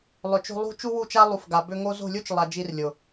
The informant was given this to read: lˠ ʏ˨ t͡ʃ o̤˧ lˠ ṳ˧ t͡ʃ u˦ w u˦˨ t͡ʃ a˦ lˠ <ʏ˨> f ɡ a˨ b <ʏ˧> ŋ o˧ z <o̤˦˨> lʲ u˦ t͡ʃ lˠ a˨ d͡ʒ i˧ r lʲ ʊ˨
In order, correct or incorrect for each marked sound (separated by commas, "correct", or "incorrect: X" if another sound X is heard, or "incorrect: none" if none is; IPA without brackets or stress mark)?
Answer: incorrect: u˨, correct, correct